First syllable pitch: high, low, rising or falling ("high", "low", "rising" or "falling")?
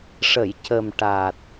low